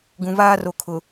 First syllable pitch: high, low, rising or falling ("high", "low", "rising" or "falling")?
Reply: low